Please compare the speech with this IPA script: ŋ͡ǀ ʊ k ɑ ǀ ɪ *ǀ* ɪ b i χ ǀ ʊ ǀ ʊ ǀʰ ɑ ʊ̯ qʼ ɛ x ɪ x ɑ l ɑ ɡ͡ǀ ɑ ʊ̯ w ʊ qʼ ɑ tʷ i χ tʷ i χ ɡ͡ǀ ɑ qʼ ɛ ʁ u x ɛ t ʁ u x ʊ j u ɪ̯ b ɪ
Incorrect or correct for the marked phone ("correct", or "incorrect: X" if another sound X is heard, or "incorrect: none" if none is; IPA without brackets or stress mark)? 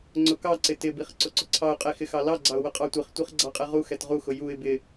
incorrect: t